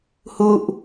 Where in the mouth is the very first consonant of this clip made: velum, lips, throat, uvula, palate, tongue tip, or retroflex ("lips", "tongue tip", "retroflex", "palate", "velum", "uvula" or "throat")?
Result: throat